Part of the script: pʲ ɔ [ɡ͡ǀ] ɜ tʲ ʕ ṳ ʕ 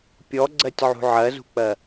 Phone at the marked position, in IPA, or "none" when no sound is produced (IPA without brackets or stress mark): ɡ͡ǀ